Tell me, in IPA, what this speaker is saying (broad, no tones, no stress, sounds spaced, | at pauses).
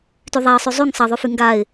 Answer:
t y ðˤ a ə̯ sˤ y zˤ y ŋ sˤ ɐ ðˤ y f y ŋ ɡ a ɪ̯